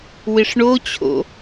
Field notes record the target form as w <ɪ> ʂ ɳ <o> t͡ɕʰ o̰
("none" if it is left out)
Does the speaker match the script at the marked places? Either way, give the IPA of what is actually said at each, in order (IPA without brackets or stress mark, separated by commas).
ɪ, o